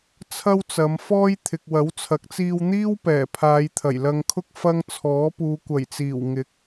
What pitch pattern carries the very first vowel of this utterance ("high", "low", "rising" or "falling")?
high